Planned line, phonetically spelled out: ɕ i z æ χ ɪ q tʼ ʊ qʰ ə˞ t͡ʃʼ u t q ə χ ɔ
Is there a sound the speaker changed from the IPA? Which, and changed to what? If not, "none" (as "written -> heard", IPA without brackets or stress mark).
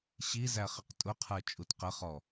none